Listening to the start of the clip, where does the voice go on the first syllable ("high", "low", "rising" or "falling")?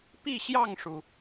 falling